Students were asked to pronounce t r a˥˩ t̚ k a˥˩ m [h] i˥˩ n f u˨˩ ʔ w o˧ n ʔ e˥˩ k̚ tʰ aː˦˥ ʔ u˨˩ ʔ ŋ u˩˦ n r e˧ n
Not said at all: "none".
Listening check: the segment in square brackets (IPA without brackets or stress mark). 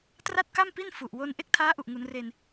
p